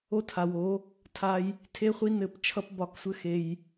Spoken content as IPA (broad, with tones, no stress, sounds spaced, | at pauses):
o˦ tʰ a˨ w o˨˦ | tʰ a˧ j | tʰ e˦ χʷ i˦ n ɘ˦˨ p t͡ʃʰ ʌ˦ p b ɒ˦˨ k sʷ ɘ˦ x e˧ j